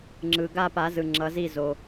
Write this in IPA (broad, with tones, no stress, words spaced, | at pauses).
ŋ͡ǁɯ˩ ɡa˦˨pa˨˩˦ zɯ˩ŋ͡ǁʌ˨˩˦zi˦˨ zo˩